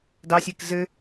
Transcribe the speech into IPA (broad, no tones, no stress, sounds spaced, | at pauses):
d ɑ sʲ e k z ɘ